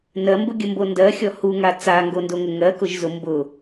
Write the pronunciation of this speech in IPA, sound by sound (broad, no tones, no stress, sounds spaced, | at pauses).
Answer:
n ɜ m b ʊ ɡʲ ə m b o n d ɜ xʲ ɔ h u ŋ a t͡s a ŋ ɡ o n d o ŋ ə ŋ ɜ k ʊ ʒ z ʊ m b ʊ